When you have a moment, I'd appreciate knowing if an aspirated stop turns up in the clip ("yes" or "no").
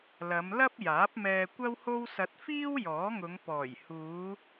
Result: no